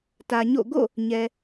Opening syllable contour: low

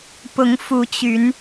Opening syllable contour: rising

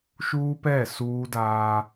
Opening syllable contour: high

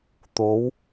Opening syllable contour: rising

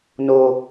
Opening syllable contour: low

